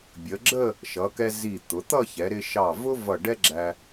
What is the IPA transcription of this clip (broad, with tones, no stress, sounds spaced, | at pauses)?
bʲ ə˩˧ ɡ͡ǁ ə˥˧ | ʃ ʌ˩˧ k ɛ˧ z i˧˩ t̪ ʊ˩˧ t̪ ʌ˥˧ ç ɛ˩˧ ɾ ɪ˧ ʃ ɑ˧˩ v ʊ˥ v ʌ˧˩ ɖ ɛ˥ ɡ͡ǁ æ˧